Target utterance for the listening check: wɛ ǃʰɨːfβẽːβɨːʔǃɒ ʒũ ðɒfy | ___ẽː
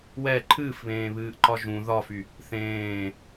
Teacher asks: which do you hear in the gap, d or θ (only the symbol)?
θ